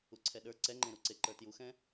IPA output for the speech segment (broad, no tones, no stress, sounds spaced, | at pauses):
u ǀʰ ɛ ɗ ə˞ ǀ ɛ ŋ͡ǃ ẽ ɾ u ǀ e ǃ ə˞ t j u x ɛ̃